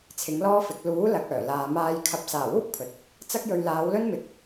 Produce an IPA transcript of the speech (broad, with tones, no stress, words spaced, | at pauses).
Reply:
t͡sʰɪ˨˥ŋlɔː˥fɪ˨˥k̚ luː˨˥ lɐ˨k̚œː˨˩laː˨ maː˧j kʰɐ˧p̚ saː˨˩wuː˥k̚ pʰɵ˨t̚ | t͡sɐ˥k̚jɵ˧ɥ laː˨˧wlɵ˥nmɪ˨˥k̚